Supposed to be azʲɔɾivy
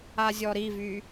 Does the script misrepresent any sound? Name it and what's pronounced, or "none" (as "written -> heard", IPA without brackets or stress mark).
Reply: none